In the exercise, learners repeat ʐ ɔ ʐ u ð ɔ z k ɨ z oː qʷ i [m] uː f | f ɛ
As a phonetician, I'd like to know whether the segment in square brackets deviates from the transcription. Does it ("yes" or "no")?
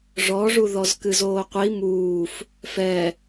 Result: no